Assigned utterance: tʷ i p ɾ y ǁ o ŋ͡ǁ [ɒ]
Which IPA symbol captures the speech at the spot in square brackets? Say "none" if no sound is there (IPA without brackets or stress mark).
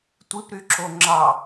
ɑ